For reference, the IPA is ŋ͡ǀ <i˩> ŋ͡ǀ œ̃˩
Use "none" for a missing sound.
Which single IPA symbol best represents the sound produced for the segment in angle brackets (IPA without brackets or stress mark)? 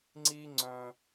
i˧